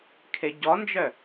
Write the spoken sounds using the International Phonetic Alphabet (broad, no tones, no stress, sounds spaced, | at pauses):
kʰ e ɟ ɔ n d͡ʒ œ